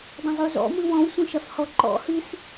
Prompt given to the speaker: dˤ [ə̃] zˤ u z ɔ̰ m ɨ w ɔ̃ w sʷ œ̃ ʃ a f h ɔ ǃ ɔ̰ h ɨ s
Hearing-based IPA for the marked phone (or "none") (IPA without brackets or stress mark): ə̃